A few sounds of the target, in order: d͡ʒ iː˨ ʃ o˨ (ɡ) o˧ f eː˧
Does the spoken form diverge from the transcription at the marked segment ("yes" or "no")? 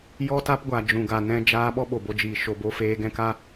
yes